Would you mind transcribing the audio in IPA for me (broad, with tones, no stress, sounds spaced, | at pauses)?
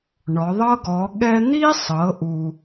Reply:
ɳ ɔ˩˧ ðˤ ɤ˥ ɡ ɔ˩˧ ɠ ɛ˥ n̪ i˥ sˤ ɤ˩˧ ʔ u˩